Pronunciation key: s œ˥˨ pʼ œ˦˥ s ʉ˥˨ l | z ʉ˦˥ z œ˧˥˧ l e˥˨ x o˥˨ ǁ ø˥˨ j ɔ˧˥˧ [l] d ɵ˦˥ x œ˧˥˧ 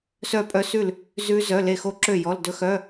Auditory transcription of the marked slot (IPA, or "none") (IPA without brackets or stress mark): l